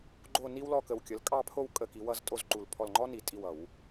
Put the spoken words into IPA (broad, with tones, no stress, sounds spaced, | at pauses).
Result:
ɡ͡ǃ o˥˧ n i˥ w l ɔ˥˧ k ə˧˩ w kʲ ə˨˦ l kʼ ɑ˥˧ pʰ o˥˧ w kʼ ə˥˧ k i˨˦ w ʌ˥˧ z tʼ o˥˧ z ǃ u˧˩ l pʰ ɔ˧˩ l ŋ͡ǃ ɔ˥ n i˧˩˧ tʼ i˧˩ w ʌ˧˩˧ w